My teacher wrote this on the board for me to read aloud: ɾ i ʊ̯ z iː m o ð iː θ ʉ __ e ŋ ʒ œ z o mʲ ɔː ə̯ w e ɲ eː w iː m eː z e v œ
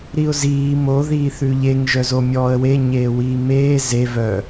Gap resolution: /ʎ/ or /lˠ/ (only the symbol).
ʎ